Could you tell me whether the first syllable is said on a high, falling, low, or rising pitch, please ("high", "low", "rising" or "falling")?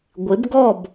rising